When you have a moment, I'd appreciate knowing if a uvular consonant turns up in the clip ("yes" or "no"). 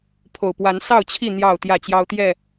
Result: no